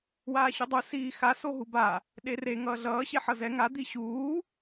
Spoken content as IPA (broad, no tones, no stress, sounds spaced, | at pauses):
w aː ɕ u dˤ u s iː x a s o ɦ u b a | ɗ e r e ŋ ʌː ɮ ʌː ɕ e ħ ʌ z ɛ ŋ a d̪ i ɕ uː